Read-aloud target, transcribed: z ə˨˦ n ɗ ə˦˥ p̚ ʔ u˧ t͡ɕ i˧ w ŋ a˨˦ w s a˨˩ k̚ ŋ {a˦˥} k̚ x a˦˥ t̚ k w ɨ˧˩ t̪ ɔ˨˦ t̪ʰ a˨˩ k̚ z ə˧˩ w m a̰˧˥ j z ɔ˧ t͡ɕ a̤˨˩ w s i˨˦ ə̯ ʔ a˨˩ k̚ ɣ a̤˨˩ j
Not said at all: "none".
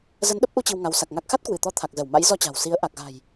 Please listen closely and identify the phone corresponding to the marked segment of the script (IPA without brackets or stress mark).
a˦˥